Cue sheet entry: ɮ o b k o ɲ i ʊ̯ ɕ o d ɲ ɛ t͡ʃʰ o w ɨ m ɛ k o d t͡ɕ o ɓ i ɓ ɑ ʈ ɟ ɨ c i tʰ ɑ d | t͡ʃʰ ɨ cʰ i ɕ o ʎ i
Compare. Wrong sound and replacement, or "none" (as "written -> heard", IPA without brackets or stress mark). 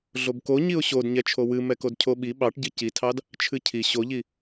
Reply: t͡ɕ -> cʰ